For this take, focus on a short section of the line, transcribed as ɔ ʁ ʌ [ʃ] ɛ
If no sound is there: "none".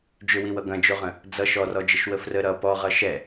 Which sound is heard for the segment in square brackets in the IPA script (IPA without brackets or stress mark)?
ʃ